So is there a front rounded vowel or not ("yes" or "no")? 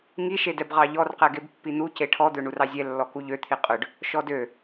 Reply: yes